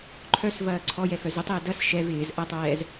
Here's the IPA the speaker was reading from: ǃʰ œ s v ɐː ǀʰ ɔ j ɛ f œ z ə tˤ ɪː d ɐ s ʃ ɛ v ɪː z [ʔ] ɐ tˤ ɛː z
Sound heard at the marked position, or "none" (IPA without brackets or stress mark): ʔ